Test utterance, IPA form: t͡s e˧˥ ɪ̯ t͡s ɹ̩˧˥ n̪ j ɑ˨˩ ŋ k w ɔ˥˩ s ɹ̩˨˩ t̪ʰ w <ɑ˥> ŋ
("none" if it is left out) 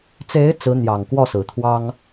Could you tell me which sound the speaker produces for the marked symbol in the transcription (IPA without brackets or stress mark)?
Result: ɑ˥